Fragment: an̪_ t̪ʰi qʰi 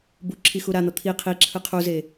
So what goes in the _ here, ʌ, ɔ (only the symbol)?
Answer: ʌ